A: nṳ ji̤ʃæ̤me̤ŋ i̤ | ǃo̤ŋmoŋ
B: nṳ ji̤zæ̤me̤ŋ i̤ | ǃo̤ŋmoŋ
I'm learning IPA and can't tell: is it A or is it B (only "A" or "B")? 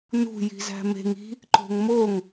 B